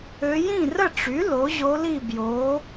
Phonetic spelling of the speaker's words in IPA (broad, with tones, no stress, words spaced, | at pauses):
ø˧˥ jĩ˥˨rə˥˨ʈ͡ʂy˩˥ lo˩˥ʑo˧˥li˥˨bjo˩˥